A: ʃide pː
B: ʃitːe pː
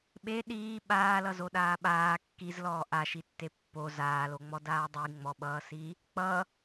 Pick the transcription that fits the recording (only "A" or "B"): B